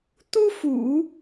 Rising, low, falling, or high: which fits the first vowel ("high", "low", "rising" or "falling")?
high